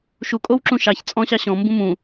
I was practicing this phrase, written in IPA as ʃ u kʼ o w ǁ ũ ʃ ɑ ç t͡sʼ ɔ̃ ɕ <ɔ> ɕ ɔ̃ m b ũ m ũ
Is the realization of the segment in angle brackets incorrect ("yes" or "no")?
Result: yes